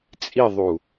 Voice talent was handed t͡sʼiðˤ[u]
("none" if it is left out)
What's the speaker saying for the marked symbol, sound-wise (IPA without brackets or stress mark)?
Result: u